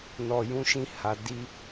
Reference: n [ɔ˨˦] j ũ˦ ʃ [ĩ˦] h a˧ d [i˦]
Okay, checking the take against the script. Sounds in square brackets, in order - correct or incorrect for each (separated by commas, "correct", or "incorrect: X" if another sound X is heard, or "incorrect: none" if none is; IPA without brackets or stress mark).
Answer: incorrect: ɔ˧, correct, correct